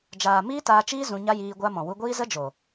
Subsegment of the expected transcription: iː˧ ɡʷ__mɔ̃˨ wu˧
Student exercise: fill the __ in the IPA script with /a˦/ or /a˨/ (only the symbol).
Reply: a˦